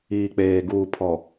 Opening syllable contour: low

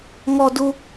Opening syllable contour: high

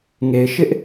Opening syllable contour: low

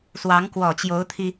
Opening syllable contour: rising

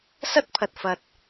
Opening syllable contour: high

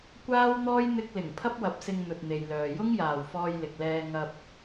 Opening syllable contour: high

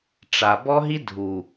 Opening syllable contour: low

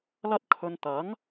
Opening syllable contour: high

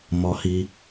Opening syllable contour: low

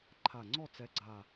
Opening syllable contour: low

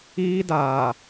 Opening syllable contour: high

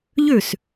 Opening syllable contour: falling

